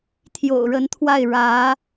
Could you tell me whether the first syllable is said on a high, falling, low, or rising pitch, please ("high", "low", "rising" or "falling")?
low